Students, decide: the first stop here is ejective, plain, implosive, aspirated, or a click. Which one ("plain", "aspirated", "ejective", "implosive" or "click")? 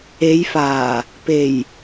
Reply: plain